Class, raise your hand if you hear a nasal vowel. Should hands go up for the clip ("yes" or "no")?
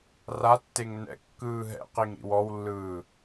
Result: no